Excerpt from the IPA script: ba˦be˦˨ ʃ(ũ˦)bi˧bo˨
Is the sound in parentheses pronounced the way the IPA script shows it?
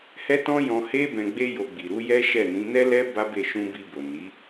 no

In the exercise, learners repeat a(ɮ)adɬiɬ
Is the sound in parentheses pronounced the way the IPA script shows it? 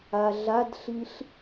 yes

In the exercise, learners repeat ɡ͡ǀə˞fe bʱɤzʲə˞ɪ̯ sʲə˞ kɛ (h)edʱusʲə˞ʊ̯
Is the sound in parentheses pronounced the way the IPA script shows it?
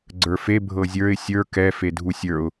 no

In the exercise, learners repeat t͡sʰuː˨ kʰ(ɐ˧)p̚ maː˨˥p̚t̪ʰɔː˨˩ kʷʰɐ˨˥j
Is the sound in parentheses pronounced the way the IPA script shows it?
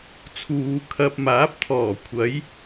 no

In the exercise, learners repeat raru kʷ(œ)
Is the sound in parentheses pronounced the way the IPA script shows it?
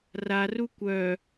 yes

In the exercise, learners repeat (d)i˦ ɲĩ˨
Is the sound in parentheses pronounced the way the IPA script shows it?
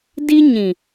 yes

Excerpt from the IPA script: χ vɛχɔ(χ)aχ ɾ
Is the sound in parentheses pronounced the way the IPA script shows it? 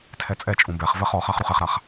yes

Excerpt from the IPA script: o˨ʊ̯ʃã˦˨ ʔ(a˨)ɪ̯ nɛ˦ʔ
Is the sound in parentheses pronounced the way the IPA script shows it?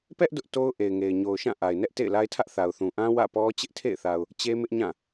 yes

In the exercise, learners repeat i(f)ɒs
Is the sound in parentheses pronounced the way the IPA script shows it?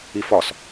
yes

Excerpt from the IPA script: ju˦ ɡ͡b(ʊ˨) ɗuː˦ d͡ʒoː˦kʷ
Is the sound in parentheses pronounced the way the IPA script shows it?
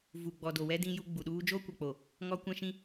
no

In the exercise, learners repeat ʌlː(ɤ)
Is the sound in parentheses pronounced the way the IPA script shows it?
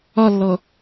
yes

